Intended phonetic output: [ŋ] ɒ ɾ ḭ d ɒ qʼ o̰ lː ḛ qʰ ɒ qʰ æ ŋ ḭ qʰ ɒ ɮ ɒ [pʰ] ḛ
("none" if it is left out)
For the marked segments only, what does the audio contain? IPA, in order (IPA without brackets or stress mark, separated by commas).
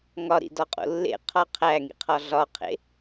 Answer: ŋ, qʰ